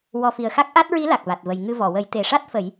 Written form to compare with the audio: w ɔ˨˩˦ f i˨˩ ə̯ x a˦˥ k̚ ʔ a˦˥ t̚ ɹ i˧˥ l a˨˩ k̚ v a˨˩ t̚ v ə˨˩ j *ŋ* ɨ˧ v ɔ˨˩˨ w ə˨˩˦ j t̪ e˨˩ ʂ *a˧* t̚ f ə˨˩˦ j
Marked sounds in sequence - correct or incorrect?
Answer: correct, incorrect

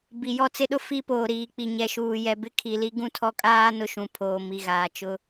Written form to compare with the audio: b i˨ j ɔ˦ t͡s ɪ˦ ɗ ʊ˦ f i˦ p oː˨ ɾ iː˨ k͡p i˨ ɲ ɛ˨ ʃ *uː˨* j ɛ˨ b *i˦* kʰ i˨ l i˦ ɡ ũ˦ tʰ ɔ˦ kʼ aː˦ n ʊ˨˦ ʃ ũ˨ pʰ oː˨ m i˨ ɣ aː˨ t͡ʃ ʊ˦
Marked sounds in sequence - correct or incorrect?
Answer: correct, incorrect

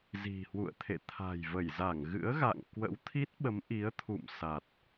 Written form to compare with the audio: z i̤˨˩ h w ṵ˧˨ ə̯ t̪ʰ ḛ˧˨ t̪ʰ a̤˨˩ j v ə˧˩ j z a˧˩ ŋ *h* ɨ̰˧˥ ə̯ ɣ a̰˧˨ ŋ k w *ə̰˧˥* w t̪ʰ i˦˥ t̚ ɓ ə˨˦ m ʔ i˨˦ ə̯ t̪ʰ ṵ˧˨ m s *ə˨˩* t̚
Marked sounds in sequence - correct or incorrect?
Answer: incorrect, correct, incorrect

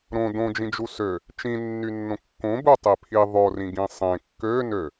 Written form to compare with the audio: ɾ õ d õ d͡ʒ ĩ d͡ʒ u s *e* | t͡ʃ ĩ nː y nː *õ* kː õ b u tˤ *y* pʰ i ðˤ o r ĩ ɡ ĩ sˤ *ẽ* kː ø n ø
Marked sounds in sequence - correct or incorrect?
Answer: incorrect, correct, incorrect, correct

